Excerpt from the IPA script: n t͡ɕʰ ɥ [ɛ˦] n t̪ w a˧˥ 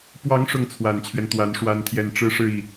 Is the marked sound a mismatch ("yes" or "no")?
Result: no